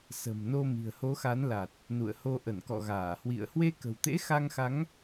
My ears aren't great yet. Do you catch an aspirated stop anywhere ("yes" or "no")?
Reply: no